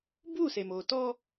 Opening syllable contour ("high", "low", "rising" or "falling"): falling